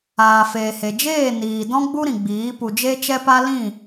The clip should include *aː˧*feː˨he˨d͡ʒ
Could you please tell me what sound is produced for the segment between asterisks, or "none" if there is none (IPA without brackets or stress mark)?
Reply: aː˨